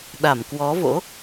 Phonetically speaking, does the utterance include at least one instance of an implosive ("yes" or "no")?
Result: yes